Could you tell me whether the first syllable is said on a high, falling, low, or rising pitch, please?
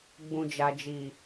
low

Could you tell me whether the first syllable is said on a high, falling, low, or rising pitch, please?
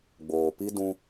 low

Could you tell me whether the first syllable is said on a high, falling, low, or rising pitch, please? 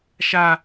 high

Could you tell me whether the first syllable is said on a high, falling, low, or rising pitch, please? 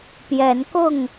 rising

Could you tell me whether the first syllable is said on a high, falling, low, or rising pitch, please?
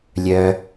low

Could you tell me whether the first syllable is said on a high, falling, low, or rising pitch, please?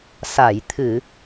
low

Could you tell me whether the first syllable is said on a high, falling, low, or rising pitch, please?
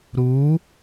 rising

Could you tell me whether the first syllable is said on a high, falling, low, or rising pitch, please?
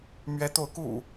high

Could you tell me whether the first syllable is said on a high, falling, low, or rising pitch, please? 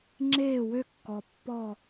falling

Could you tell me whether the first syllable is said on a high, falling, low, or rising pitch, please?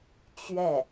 falling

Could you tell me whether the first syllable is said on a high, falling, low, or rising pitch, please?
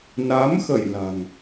rising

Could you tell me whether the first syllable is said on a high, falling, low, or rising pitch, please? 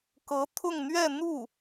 rising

